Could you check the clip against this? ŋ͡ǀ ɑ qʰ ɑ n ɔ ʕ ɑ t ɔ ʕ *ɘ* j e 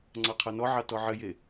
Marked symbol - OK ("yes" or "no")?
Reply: yes